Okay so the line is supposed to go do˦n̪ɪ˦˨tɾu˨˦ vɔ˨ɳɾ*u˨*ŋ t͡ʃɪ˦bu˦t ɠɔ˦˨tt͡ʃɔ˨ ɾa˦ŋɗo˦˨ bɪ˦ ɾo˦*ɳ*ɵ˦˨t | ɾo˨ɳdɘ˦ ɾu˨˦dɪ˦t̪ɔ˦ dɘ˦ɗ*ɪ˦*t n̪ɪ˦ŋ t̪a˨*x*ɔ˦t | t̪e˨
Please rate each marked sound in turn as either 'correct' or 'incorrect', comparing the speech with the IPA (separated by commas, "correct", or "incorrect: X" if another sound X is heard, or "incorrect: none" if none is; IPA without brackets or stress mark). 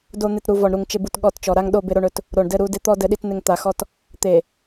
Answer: correct, correct, incorrect: i˦, correct